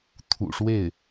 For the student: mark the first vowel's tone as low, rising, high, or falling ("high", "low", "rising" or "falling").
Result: low